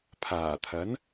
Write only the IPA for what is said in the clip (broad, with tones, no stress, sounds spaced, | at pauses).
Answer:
pʰ aː˨˩ t̪ʰ ɐ˨˥ n